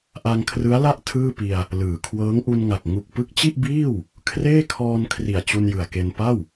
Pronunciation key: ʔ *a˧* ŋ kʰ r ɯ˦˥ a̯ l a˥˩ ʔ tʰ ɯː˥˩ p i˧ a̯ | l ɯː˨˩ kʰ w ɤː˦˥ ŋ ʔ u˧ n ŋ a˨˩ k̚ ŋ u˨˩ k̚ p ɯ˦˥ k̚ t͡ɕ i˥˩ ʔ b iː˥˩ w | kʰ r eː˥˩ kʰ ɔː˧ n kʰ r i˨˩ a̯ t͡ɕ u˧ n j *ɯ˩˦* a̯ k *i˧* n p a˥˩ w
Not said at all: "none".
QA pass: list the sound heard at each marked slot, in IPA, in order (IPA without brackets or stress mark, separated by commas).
a˧, ɯ˨˩, e˧